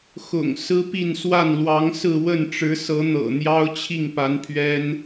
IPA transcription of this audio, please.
x ʊ̰˨˩ ŋ s ɹ̩˥ p i˥˧ n s w a˥˩ n l w ɑ˧˥ ŋ s ɹ̩˥˧ w ə˥˩ n ʈ͡ʂ ɻ̩˧˥ s ɤ˧˥ n̪ ɤ̰˨˩ n̪ j ɑ˥ ʊ̯ t͡ɕʰ i˥˩ ŋ p a˧˥ n pʰ ɥ ɛ˥ n

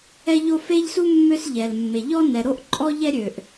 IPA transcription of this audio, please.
ɛ˥ ʎ o˥ f e˥ ʎ s u˥ mː ø˥ s ʎ ɛ˩ l mː e˩ ʎ ɔ˥ n ɛ˩ ɾ o˥ ʔ ǃʼ ɔ˥ ʎ ɛ˥ ɾʲ ø˩ ʔ

